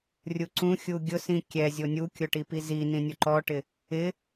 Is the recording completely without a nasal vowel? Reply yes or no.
no